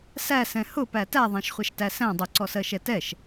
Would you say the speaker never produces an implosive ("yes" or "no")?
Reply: yes